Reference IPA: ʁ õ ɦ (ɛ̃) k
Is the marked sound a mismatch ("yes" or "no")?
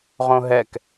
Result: yes